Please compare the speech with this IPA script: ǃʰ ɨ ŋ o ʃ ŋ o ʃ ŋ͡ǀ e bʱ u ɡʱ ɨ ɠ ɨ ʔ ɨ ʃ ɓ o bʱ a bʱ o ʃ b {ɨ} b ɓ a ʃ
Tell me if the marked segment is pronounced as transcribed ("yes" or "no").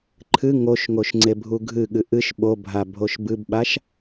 yes